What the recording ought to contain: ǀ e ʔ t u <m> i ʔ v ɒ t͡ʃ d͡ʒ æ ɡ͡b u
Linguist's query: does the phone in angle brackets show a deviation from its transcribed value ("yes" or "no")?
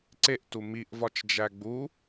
no